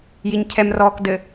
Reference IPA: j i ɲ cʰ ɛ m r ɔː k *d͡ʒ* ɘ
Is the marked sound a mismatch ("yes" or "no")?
yes